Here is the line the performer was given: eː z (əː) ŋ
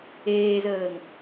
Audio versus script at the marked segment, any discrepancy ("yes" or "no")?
no